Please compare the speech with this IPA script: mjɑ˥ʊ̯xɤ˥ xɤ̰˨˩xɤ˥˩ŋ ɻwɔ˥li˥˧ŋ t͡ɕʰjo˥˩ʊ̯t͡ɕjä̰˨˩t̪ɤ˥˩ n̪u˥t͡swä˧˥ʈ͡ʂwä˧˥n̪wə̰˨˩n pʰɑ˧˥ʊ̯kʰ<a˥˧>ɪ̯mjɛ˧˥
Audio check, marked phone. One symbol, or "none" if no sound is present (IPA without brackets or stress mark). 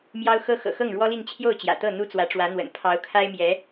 a˥